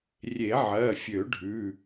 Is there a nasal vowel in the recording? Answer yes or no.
no